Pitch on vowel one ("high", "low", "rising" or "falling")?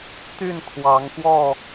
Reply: falling